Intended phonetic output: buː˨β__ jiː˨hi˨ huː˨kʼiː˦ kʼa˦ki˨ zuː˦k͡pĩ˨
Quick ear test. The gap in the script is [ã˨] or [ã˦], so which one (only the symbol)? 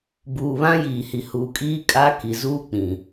ã˦